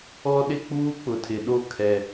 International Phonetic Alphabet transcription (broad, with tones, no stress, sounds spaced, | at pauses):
ɔ˦ ɗ ɪ˦ k͡p uː˦ k͡p ʊ˨ tʰ ɪ˨ ɗ o˦˨ kʰ ɛ˦